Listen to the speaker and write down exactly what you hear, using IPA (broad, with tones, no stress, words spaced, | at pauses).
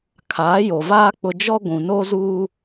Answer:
kʰaː˨˦jo˨vaː˦ k͡pʊ˦ d͡ʒɔ˦ ɡʷũ˨no˦zuː˦